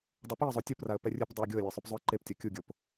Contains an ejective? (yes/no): no